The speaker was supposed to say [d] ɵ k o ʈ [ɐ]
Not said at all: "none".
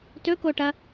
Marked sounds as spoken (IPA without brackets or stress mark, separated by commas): t, ɐ